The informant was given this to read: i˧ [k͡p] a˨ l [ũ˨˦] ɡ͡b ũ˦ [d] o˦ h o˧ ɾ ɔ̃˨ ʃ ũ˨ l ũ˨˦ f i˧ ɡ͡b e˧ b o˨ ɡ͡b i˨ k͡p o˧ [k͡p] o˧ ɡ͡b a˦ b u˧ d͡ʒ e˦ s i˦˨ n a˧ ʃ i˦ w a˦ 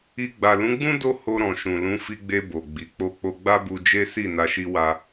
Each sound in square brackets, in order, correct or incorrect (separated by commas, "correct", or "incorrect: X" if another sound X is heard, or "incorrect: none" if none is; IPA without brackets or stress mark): incorrect: ɡ͡b, correct, correct, correct